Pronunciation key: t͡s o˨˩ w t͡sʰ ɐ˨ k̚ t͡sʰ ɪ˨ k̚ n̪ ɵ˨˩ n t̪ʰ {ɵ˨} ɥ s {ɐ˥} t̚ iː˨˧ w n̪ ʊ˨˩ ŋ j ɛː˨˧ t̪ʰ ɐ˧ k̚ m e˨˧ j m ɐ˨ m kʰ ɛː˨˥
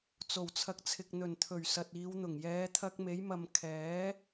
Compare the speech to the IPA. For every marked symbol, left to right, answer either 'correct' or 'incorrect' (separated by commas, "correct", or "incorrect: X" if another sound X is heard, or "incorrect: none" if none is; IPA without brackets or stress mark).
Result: incorrect: ɵ˨˩, incorrect: ɐ˨